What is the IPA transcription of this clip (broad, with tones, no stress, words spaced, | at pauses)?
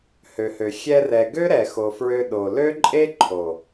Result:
hø˨hø˨ xʲɛ˧rɛ˨ ɡø˦ɾɛ˨ xo˨fɹø˧ ɗo˨ lø˦ǃʼe˦ ǃʰo˨